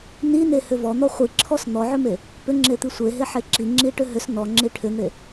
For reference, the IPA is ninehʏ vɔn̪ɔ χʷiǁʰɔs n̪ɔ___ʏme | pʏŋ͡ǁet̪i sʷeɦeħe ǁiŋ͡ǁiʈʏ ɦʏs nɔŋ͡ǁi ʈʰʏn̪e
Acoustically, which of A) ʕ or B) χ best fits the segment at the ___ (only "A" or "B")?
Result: A